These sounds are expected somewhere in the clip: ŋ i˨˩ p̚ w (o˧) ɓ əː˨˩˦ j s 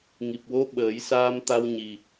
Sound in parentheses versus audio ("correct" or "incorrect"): incorrect